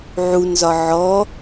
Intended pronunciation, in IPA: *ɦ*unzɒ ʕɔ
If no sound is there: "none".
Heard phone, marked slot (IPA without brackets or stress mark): ʕ